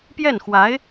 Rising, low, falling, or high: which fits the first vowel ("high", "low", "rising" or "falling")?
falling